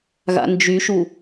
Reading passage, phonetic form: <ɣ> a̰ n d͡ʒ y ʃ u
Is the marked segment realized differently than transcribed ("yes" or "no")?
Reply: no